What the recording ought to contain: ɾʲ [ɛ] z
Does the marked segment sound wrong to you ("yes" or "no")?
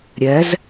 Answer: no